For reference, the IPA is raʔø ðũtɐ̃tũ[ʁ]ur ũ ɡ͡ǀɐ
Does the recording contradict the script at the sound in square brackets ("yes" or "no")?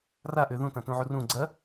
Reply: yes